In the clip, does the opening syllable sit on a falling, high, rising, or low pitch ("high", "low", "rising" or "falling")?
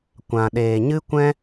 low